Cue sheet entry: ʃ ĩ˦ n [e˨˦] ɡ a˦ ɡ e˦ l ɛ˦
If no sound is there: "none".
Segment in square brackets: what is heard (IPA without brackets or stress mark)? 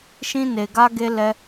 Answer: e˧